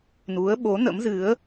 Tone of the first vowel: rising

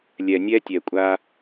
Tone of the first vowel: low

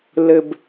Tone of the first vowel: low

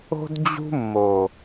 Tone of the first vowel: high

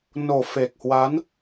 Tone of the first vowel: low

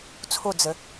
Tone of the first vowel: falling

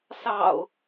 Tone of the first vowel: low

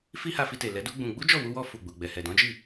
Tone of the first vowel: high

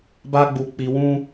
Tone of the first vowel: high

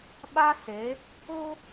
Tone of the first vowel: high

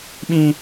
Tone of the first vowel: high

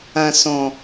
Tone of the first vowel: low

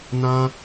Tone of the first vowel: high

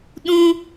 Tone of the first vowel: high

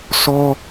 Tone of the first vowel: high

